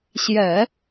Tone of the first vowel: low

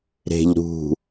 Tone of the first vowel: low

